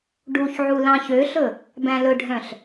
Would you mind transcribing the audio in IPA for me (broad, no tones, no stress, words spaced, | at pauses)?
ɖuçʕu lɑ̃çøɬɵ | bæ̃lɵɖʱœ̃ɬ